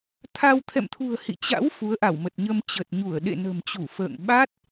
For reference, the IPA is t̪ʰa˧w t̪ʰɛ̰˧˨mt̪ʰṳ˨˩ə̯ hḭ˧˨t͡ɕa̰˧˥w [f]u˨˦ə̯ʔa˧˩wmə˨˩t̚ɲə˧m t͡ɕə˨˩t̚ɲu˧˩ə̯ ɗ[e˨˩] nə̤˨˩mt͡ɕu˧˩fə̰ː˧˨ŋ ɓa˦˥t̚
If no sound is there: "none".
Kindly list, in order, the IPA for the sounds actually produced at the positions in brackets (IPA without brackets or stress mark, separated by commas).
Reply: f, ḛ˧˨